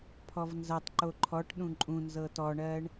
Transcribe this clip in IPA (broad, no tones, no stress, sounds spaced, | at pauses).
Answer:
pʰ ɔ v n z ɐ tˤ ǃ o ǃʰ ɔ ʈ ɗ ũ ǃʼ ũ n z ɤ t ɔ ɳ ɜ ɳ